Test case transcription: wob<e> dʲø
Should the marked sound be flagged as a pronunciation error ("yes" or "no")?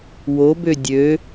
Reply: yes